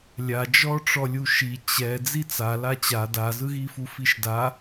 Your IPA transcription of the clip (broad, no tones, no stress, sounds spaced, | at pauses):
lʲ a d͡ʒ ɔ ʈ͡ʂ ɔ lʲ u ʃ i t͡ɕ ɛ d͡z i t͡s a l a t͡ɕ a d a z ɯ ɣ i f u f i ʃ d a